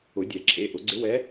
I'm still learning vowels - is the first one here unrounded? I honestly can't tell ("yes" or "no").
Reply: no